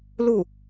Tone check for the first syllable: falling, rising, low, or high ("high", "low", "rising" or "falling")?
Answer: falling